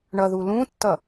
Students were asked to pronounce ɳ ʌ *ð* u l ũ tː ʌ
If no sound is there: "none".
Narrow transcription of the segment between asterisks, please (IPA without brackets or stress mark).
ð